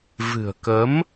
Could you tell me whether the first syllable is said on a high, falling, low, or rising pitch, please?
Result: low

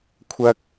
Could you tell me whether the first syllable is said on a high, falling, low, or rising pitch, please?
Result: high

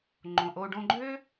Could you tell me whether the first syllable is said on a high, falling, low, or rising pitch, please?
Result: low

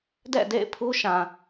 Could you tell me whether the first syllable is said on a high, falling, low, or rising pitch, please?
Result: falling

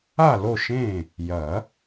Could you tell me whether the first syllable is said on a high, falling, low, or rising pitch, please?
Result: falling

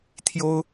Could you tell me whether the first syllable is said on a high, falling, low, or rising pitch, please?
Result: high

